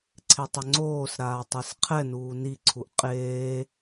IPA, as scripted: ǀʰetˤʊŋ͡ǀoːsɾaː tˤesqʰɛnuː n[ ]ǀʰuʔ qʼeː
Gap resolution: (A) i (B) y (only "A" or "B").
A